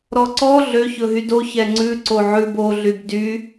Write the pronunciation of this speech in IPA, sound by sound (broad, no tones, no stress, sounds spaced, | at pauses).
ɾ ɔ ǀ ɔ ɮ ø ç ɵ ɦ y d o ç ɛ ŋ͡ǀ ʉ ǀ o ʕ ʉ b o ɮ y b d y